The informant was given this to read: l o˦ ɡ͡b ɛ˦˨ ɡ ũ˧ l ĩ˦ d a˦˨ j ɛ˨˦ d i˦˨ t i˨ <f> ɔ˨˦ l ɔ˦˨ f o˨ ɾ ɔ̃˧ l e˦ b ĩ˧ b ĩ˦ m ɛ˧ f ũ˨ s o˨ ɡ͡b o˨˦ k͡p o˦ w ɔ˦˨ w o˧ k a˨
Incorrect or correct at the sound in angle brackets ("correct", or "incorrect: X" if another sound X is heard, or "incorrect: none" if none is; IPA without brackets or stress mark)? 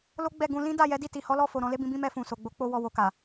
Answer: incorrect: h